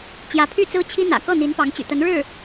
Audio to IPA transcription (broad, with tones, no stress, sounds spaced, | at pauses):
t͡ɕ j ä˧˥ pʰ y˥˩ t͡s ɹ̩˥ t͡ɕʰ i˥ n̪ ä̰˨˩ k ɤ˥˩ n̪ i˧˥ n p ɑ˧˥ ŋ t͡ɕ y̰˨˩ t̪ ə˧˥ n ɻ ɻ̩˥˩